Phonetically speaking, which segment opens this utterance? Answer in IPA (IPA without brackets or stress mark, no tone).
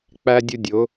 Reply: k͡p